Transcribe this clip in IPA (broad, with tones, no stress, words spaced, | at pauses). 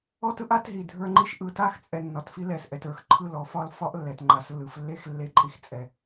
ɔ˦tɯ˦ʔa˦tɦi˨ dʱə˞˦ŋ͡ǃi˦ʃ ʔɯ˨ta˦xt͡sʼɛ˨ nːɒ˨tfi˦ lɛ˨sʔɛ˨tə˞˦˨x ǃʰɯ˦˨lɔ˦fɒ˦l fɒ˦ʔlːɛ˨t ŋ͡ǃa˨slːɯ˨flːe˦x lːe˦ǃʼi˦x t͡sʼɛ˨